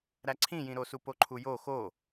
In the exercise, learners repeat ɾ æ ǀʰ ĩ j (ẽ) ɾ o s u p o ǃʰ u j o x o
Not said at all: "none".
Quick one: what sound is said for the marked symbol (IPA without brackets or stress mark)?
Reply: ĩ